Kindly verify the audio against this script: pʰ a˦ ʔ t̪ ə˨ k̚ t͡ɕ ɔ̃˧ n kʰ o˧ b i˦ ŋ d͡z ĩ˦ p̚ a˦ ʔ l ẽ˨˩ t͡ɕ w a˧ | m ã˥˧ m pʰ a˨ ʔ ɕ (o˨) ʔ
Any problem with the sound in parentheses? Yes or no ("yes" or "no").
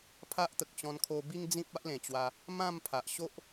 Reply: yes